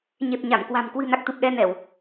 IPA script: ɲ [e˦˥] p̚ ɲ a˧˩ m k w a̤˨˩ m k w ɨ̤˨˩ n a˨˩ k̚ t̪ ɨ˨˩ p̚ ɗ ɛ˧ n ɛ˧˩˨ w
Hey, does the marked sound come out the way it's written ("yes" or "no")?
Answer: no